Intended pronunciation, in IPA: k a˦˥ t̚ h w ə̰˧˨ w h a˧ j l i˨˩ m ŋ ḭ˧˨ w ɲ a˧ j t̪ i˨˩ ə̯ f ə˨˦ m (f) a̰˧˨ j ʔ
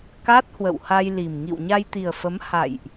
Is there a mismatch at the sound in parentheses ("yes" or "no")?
yes